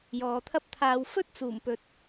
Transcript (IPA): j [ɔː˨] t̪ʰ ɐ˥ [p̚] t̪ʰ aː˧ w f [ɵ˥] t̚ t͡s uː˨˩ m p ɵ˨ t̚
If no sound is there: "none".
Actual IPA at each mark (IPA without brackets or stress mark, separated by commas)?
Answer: ɔː˨, p̚, ɵ˥